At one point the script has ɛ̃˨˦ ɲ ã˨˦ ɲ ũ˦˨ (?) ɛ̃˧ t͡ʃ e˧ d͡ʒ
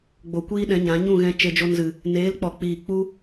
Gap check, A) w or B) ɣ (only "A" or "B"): B